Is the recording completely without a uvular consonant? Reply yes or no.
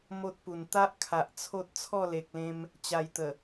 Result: yes